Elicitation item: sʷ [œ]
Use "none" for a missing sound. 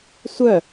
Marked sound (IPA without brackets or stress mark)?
œ